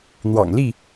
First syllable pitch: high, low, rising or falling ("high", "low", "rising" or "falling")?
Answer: low